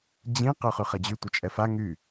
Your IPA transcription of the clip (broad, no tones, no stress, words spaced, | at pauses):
d͡ʑĩ qœχyχɛd͡ʑy tʷœt͡ʃʼɛfa ŋy